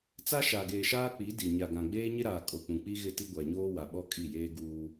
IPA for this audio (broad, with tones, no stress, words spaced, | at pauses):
t͡sa˦ʃaː˨ɡeː˨ʃaː˦ k͡pi˨˦di˨ ɲa˨ɡã˨ɡ͡beː˦ ɲɪ˦ɾaː˨kʼo˨k͡pũ˨ k͡pi˦ɣɪ˦˨ ti˦ɡʷa˨ɲoː˦ wa˨ ɓɔ˦kʼi˦˨jeː˦ɡuː˦